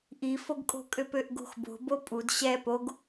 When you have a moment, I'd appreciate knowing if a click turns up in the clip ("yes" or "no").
no